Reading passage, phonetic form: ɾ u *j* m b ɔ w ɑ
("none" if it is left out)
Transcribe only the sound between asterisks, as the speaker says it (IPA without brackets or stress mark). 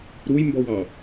j